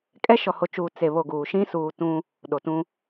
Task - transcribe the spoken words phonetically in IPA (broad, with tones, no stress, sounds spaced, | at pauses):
kʼ ɛ˦ ʃ ɔ˨ h o˨ t͡ʃ uː˨ t͡s e˨ β o˨ ɡ uː˨ ʃ ĩ˦ s uː˨ t ũ˦ | ɗ o˨ t ũ˦